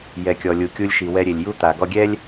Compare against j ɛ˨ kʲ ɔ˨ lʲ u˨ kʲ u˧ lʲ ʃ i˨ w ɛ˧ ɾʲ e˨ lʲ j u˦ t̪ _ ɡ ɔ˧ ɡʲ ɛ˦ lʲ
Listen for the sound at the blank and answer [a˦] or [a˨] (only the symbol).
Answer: a˨